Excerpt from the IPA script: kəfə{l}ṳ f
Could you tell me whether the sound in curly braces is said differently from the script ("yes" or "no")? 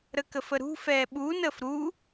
yes